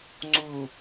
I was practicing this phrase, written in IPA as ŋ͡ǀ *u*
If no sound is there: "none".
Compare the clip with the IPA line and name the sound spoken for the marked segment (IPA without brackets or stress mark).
u